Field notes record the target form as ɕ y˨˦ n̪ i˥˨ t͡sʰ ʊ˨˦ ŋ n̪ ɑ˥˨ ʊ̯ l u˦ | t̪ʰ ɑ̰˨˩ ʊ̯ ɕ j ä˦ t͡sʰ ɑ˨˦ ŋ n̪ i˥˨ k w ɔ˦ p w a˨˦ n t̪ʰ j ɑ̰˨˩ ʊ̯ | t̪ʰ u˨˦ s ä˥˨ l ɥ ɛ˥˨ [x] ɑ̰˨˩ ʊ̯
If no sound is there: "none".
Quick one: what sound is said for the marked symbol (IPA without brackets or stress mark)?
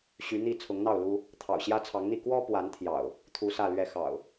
x